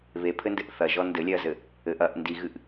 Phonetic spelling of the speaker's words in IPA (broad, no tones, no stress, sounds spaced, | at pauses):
β e pʰ ɘ n d ɘ ʔ θ ɐ ʒ ɔ n d ɘ lʲ ɛ ɐ̯ z ɘ | ɘ ʔ ɐ ʔ n d i ɣ ɨ ʔ